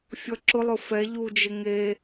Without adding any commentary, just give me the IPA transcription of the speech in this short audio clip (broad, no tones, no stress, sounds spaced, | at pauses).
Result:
fʲ ɔ ǁ ʊ lˠ ʊ f ɛ ʎ u d͡ʒ ɪ ŋ e